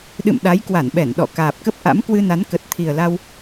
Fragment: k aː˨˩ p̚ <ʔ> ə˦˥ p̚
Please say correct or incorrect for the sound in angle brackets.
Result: incorrect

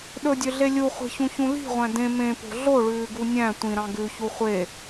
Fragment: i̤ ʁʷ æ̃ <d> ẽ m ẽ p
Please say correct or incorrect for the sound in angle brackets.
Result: correct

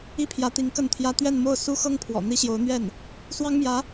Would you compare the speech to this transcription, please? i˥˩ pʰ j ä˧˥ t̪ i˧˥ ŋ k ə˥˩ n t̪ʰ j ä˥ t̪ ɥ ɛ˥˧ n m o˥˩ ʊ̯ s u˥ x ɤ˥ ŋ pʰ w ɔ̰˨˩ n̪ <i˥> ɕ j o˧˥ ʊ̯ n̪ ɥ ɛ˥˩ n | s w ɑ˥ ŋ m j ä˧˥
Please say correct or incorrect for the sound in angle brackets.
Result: correct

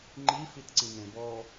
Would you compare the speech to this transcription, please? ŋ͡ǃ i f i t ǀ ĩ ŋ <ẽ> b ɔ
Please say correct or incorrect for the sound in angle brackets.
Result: correct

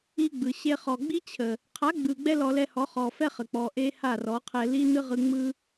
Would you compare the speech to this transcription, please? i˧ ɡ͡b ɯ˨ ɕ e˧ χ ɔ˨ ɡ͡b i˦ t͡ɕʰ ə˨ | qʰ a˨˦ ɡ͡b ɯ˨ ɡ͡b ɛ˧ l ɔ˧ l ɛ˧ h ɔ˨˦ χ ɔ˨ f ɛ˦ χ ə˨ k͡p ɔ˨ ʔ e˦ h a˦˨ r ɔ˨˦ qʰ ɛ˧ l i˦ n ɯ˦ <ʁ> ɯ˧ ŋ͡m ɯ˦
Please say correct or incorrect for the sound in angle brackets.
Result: correct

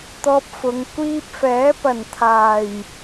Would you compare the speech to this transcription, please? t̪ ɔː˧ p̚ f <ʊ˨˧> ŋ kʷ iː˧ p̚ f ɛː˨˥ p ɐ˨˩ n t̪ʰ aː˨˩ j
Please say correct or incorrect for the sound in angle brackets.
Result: correct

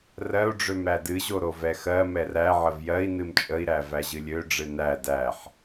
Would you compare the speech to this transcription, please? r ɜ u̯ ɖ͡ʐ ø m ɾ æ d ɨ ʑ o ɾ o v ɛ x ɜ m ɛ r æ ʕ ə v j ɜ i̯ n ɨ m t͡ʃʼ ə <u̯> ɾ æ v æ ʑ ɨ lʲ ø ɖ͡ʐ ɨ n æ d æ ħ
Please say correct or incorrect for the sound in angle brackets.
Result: incorrect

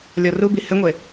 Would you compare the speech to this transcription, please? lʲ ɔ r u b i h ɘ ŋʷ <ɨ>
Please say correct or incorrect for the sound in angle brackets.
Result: incorrect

